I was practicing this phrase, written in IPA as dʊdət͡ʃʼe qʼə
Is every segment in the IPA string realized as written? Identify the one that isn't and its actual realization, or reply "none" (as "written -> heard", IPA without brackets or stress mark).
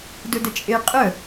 none